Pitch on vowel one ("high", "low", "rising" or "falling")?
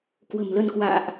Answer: low